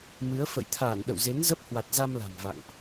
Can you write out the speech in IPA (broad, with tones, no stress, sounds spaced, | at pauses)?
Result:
m ɨ˨˦ ə̯ f ə̰˧˨ j t̪ʰ aː˧˩ n ɗ ə̰˧˨ w z e˨˦ n z ə˦˥ p̚ h w a˨˩ t̚ z a˧ m l a̤˨˩ m v a̰˧˨ ŋ ʔ